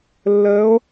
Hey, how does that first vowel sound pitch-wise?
rising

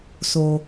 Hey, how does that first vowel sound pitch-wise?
low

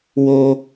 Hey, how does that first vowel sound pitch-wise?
high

